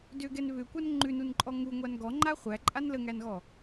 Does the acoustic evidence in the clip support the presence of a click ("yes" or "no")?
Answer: yes